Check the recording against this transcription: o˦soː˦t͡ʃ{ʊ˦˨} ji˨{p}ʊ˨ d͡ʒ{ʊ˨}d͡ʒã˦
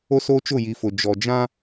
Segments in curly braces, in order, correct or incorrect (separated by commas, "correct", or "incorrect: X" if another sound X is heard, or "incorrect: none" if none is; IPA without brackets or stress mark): correct, incorrect: f, incorrect: ɔ˨